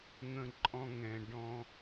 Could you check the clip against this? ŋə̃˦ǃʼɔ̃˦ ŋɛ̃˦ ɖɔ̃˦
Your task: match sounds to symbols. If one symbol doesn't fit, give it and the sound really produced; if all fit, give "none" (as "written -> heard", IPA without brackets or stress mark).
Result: none